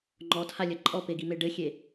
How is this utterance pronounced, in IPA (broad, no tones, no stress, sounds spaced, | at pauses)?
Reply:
ŋ͡ǃ ɔ tʰ a lʲ ɐ ǃʼ ɔ p e ɡ i m e ɖ ɘ xʲ e